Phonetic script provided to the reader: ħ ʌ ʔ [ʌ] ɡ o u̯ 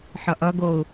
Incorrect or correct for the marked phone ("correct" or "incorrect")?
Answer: correct